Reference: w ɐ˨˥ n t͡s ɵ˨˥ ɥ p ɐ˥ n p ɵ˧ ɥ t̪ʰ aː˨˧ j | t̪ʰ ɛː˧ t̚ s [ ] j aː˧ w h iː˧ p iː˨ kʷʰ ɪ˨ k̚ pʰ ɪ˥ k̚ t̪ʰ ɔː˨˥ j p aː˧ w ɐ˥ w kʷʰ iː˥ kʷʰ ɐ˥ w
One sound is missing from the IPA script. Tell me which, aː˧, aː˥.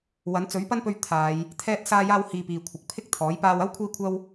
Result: aː˧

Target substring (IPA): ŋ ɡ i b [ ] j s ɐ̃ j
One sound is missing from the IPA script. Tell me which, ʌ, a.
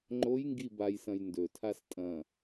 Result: a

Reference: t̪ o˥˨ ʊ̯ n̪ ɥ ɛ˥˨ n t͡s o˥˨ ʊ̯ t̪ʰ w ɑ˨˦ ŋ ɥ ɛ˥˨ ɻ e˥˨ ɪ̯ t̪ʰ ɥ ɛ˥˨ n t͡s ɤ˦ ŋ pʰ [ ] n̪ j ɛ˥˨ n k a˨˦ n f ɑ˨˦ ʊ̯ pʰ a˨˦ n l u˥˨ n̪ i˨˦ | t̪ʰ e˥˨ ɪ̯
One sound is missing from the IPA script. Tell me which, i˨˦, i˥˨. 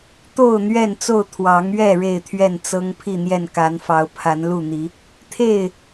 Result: i˥˨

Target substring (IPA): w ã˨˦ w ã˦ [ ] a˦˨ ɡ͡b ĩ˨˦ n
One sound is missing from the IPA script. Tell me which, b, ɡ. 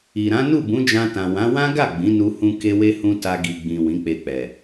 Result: ɡ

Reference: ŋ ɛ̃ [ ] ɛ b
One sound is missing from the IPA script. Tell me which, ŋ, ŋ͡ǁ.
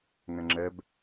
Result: ŋ͡ǁ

